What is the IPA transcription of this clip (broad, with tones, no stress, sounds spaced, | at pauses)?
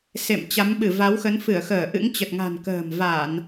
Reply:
s ḛ˧˨ m t͡ɕ a˨˦ m ɓ ɨ˧˩ v a˨˦ w x ə˨˦ n f ɨ˧˩ ə̯ x əː˧˩ ʔ ɨ̰˧˥ ŋ t͡ɕ ə˨˩ t̚ ŋ a̤˨˩ n k ə̤ː˨˩ m v a˧˩˨ n